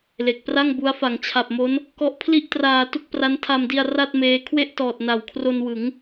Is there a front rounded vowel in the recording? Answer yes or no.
no